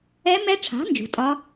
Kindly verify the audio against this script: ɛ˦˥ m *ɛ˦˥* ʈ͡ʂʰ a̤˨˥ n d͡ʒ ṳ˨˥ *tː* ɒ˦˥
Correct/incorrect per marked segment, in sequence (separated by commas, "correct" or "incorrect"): correct, incorrect